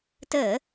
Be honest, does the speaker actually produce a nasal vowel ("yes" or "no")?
no